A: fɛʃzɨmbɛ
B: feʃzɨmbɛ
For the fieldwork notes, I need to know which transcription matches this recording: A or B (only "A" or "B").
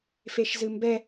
B